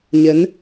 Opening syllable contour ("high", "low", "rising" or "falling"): rising